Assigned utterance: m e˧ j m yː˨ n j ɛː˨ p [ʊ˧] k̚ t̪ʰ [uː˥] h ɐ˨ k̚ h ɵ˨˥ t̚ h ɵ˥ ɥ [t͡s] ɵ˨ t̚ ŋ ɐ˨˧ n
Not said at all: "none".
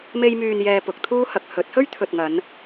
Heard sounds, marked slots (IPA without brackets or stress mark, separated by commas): ʊ˨˥, uː˥, t̪ʰ